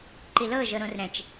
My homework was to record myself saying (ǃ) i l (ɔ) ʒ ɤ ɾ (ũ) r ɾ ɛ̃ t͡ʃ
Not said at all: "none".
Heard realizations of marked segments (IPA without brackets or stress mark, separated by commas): ǃ, ɤ, õ